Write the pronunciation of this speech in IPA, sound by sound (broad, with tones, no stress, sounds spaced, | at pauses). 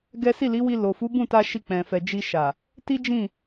ɡ ɛ˦ s i˦˨ l i˨˦ w i˧ l o˨ f u˨˦ b ũ˦˨ t a˧ ʃ i˧ k͡p ɛ̃˨ f ɛ˨ d͡ʒ i˧ ʃ a˨ | t i˦ d͡ʒ ĩ˦˨